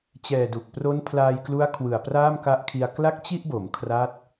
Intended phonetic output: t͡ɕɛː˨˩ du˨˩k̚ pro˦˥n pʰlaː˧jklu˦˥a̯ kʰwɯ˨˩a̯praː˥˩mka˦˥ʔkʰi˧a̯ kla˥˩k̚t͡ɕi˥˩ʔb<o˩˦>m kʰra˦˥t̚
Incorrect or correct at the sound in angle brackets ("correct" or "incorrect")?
correct